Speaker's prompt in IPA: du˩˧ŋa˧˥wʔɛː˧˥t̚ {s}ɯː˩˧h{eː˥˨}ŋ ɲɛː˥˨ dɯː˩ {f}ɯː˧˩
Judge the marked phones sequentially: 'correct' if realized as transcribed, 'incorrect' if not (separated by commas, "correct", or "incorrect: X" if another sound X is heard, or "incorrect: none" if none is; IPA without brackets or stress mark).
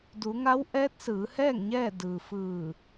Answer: correct, incorrect: ɛː˥˨, correct